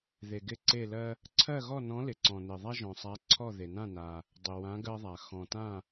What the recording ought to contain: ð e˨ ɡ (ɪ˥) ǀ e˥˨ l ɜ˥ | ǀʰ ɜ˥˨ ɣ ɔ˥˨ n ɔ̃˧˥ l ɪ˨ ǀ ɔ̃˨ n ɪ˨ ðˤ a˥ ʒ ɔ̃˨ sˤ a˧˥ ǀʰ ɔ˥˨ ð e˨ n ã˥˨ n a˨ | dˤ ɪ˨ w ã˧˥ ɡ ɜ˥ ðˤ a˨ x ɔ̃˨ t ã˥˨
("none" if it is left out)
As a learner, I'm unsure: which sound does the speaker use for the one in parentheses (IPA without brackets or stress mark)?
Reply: ɪ˥˨